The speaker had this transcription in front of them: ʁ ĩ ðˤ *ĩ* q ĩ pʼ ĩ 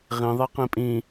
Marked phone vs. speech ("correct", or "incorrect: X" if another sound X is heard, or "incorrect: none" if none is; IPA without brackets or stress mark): incorrect: i